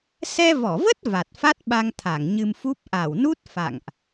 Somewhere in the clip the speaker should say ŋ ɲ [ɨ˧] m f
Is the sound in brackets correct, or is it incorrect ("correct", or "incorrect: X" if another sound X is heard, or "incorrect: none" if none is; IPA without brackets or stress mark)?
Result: correct